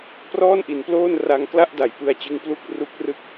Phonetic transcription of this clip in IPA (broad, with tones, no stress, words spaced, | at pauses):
prɔː˥˩nʔi˩˦nploː˥˩n ra˧ŋ kla˥˩ʔda˩˦j pɯ˧a̯t͡ɕɯ˦˥ŋplu˥˩k̚ ru˦˥k̚rɯ˥˩k̚